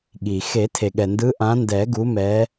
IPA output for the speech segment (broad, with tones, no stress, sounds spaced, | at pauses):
ɠ i˩ x e˨˩˦ tʰ e˩ ɠ ɛ˩ n d ɯ˨˦ ʔ ã˨˦ n d ɛ˨˩˦ ɡ u˨˦ m ɛ˨˦